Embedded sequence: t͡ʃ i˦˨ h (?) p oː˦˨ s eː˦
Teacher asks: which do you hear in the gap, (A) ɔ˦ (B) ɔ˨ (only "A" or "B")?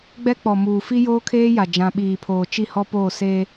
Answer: A